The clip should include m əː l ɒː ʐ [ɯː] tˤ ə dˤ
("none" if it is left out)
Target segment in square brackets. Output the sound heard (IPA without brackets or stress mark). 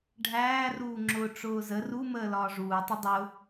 uː